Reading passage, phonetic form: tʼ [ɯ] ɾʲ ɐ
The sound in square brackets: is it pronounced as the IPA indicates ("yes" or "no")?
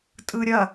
yes